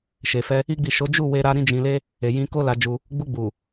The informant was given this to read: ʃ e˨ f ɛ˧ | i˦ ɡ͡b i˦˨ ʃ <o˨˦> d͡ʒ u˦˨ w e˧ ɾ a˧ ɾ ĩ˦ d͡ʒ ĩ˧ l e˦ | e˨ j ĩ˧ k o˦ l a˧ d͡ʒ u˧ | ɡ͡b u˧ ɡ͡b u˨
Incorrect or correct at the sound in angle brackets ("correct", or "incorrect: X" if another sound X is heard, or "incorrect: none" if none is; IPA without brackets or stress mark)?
correct